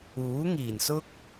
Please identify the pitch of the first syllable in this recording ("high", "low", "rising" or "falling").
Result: rising